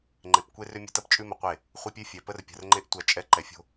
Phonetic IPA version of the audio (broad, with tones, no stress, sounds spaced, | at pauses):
ŋ͡ǃ e˨ p kʷ e˦ r ʏ˦ mʲ ə̤˦ t ɐ˦ p t͡ʃʼ ʉ˦ m ə˨ qʷ e˦˨ | χʷ e˦ pʲ ʉ˦ fʲ ɛ˨ p ə˦ r pʲ ə̤˨ r ŋ͡ǃ e˦ ʔ tʷ ɐ˦ t͡ʃʼ ɛ˦ ǃ ɛ˨ fʲ o̤˦